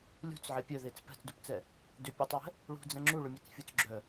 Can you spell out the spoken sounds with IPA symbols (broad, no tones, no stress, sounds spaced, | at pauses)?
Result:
lʲ ṳ t͡s ʕ e pʲ œ ð e t͡s p ɛ̤ t͡s d u p t͡s ɛ | d ʏ pʲ œ tˤ w ɛ̤ | ɭ ṳ d͡z ɛ̃ ŋ͡ǁ u ɭ ʏ mʲ ɛ t͡s fʲ u t͡s ɡ͡ǁ œ